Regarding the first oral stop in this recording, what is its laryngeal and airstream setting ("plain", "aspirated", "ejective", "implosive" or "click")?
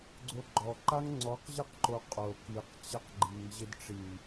click